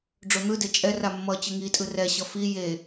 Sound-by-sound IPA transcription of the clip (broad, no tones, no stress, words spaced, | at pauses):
ɖ͡ʐon̪ɯde t͡ʃʼɛra mːʌ t͡ɕɯŋitʼɯ rɛɕʌ fi je